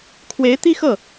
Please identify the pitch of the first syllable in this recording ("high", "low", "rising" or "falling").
rising